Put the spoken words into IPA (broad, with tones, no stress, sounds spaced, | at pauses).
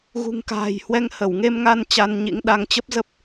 ɣ ṳ˨˩ ŋ k a̤ː˨˩ j h w ɛ˧ ŋ h ə˧˩ w ŋ e˧ m ŋ a˧ n t͡ɕ a˧ n ɲ ḭ˧˥ ŋ ɗ a˧ ŋ t͡ɕ ə˦˥ p̚ z ə˦˥ p̚